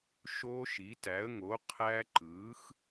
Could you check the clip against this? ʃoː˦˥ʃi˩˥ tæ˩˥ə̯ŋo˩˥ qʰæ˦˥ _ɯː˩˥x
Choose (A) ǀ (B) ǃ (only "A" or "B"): B